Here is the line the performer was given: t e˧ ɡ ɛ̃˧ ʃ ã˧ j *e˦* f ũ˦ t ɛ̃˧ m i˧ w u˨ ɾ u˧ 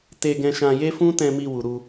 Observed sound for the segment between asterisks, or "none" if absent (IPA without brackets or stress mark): e˦